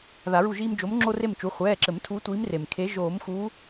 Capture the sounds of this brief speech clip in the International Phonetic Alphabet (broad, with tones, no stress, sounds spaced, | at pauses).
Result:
ð a˨˩˦ ɹ u˦˨ ʒ iː˦ m d͡ʒ o˨˦ m ŋ͡ǁ o˦ r e˦˨ m t͡ʃ u˩˧˩ χʷ ɛː˩˧˩ ǁ ɘ˨˩˦ m tʰ uː˨˦ tʷ iː˨˦ m r e˩ m kʰ e˨˦ ʒ oː˨˩˦ m x uː˨˦